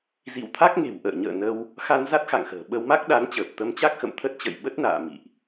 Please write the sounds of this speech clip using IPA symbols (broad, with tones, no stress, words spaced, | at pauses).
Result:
zḭ˧˨wt̪ʰa˦˥k̚ŋe̤˨˩w ʔə̰ː˧˨ɲə̰ː˧˨nə˧w | xa˧n za˦˥t̚xa̰˧˨ŋxə̤ː˨˩ ɓə˧wma˦˥k̚ɗa˨˦nt͡ɕəː˨˩p̚ t̪ə˧mt͡ɕa˦˥k̚xə̰˧˨m t̪ʰə˦˥t̚t͡ɕə̰˧˨j ɓə˦˥t̚na̰ː˧˨ mḭ˧˨ʔ